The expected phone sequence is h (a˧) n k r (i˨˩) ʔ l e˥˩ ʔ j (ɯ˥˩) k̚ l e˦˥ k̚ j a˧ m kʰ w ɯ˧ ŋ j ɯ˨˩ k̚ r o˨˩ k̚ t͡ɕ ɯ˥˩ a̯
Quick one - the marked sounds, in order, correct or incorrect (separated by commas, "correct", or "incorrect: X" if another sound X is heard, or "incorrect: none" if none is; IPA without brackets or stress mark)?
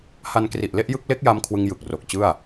correct, correct, correct